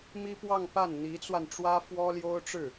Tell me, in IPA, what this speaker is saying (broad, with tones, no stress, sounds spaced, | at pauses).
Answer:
m i˥ p w ɑ˥˧ ŋ p a˥˩ n n̪ i˧˥ t͡s w a˧ n ʈ͡ʂ w ä˥ f w ɔ˥ l j o˥ ʊ̯ ʈ͡ʂ ɻ̩˥˩